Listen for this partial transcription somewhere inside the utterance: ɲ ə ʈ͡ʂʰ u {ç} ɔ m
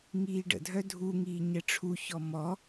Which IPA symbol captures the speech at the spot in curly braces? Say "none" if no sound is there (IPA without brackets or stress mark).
ç